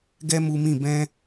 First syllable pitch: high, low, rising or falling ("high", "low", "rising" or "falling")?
high